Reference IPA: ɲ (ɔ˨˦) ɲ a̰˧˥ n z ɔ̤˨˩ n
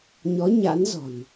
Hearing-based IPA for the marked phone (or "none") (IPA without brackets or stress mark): ɔ˨˦